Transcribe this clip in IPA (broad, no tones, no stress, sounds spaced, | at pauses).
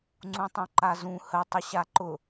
ŋ͡ǀ ũ tˤ ũ ǃ a z ũ h ə tˤ ʊ ɕ a ǃ ʊ